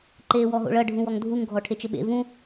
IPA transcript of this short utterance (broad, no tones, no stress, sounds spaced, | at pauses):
ǃ eː w ɔ ɦ o̰ ɭ ɐ ɖʱ ũ w ɔ ŋ dʱ u ŋ ɡʱ ɔ ʈʰ e t͡ʃ ɘ ɓ ḛ v ũ